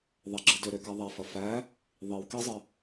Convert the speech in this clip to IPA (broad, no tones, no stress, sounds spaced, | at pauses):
ðˤ ɐ ɡ͡ǁ ɯ d ʏ ɾ ʏ k a ðˤ æ f ɐ f æ | ðˤ i w k i zˤ ə